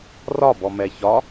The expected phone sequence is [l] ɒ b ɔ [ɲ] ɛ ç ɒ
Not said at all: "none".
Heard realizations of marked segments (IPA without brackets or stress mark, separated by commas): r, m